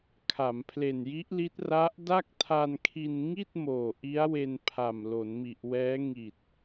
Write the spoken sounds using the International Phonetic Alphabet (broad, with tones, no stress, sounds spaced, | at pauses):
kʰ a˩˦ m pʰ l e˨˩ n j i˦˥ ʔ l i˦˥ t̚ r a˦˥ ʔ d a˥˩ k̚ tʰ a˧ n kʰ i˧ n ŋ i˥˩ t̚ m oː˨˩ ʔ i˦˥ a̯ w e˧ n pʰ a˨˩ m l o˩˦ n m i˨˩ ʔ w ɛː˦˥ ŋ i˨˩ t̚